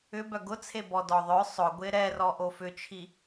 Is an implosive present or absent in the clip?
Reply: absent